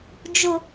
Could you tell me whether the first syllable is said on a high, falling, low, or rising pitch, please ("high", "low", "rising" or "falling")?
low